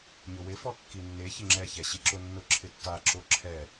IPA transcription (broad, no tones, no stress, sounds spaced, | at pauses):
ɲ ʊ w ɪ f ɔ kː i nː e ç ɪ ŋ͡ǁ ɛ ç ɛ ɕ i ǁ ʊ nː ʊ ǁʰ ɪ tː a ǁ o ǁʰ ɛ